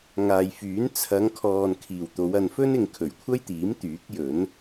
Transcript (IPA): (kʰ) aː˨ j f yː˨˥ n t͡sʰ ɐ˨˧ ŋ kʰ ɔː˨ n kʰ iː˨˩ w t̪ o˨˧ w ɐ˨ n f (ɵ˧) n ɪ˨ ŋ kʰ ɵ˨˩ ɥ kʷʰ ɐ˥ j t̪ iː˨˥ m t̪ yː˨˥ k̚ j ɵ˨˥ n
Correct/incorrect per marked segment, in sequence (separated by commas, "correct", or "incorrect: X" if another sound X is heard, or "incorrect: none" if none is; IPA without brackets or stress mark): incorrect: ŋ, incorrect: ɵ˥